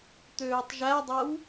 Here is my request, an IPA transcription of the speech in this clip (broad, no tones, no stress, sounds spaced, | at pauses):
t̪ øː tˤ ʒ æ dˤ ɜ w